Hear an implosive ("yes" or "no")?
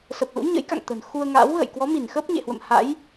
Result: no